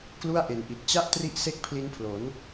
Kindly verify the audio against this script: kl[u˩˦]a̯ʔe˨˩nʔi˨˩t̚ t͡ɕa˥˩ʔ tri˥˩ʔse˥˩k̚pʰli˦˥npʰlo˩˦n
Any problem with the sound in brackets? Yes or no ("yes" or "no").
yes